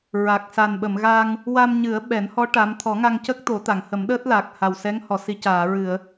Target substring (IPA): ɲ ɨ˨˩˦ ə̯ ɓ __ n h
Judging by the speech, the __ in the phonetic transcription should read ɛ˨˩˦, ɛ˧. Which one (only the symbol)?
ɛ˨˩˦